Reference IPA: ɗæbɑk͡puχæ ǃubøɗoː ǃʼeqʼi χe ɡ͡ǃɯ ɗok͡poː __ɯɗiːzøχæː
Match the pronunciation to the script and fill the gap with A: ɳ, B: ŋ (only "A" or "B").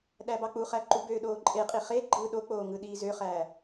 B